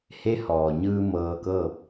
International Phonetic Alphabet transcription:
he˧˥hɔː˩ɲɯː˧ mɤː˧kɤː˥˨p̚

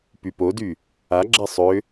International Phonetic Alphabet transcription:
pypody | aɡ͡ǁɛ sˤʏ

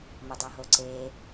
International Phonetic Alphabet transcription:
mədˤoɦoǀe

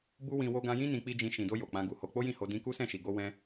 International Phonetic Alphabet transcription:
bu˦wĩ˧ wo˧ɡã˧jĩ˦ nĩ˧k͡pi˦d͡ʒĩ˧ ʃĩ˨do˧ jo˨k͡pã˧ ɡu˨ho˧ k͡po˦jĩ˦˨ho˧ dĩ˧ ku˦sɛ̃˦˨ʃi˨ ɡo˧wɛ̃˧

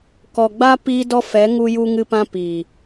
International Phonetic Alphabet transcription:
kɔ˨ɡ͡ba˦ piː˦dɔ˦ fɛ˨˦ ŋu˦ju˦ŋɨ˦pã˦ piː˨

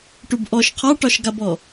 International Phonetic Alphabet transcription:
ʈubʔɔʃ qʰaʈɒʃɡabɔ

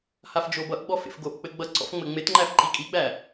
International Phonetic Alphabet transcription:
hafd͡ʒobʌʔɡ͡bɔ fḛfɡoʔk͡pɘ ɡ͡bʌǀɔ̰f ŋ͡mɘŋ͡metŋ͡ǃæf ǃikʼiɡ͡bæ

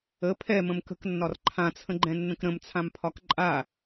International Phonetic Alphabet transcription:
ə pʰɛmə̃m kə̤knːɒr ǃʰãt͡sʰə̃ɡ͡ǃɛ̃nːə̃k ɾə̃mt͡sʰãmpʰɒk ǃʼa

